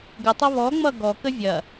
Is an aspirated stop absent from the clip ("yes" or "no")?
yes